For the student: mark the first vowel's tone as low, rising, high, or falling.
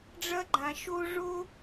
high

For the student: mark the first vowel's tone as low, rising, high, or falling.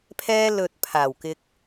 high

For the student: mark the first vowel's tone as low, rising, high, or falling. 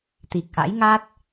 low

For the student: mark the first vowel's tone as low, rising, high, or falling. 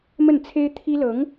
falling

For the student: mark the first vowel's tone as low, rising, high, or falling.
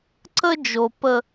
high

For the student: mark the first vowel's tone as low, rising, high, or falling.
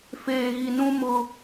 low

